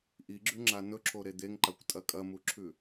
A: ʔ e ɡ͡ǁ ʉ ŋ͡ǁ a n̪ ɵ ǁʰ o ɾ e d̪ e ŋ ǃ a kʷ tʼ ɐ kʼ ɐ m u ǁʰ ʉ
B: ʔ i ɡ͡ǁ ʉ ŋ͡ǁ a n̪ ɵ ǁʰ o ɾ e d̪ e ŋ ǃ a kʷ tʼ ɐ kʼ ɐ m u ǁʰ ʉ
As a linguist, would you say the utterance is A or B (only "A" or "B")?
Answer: B